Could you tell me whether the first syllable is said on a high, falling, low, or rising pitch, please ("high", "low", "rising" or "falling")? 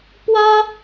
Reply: high